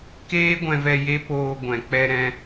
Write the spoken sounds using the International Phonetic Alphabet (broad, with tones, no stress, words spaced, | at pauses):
keː˦ɡʷɛ̃˧vɛ˧ je˦poː˧ ɡʷɛ̃˨ k͡pɛ˧ɾɛ̃˧